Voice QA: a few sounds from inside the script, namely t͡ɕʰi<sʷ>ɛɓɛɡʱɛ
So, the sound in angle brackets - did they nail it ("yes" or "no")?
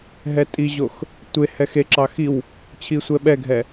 yes